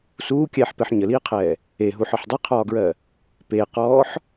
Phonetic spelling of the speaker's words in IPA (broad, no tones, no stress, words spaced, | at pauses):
suːkʲɛːħpɛħ ɲəliːqʰɛː | eɦuħɒħ dˤiqʰɒːɡɹɜ | peːqɔːħ